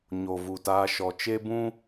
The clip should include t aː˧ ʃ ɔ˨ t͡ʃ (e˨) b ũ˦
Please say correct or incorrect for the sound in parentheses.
incorrect